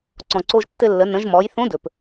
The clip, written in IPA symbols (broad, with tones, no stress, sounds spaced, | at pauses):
ǀ ɔ̃˩ ǀ o˧ ʒ tː ɘ˧ lː ə˩˧ n ə̃˩˧ ʒ m ɔ˩˧ j θ õ˧˥ d ɵ˩ p